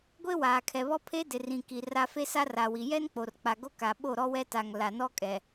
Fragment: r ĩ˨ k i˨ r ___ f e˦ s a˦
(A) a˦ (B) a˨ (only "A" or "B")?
A